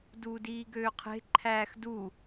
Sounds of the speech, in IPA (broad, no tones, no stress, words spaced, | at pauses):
duːdiːɡøːqʰe̤ ǃʰæːxdu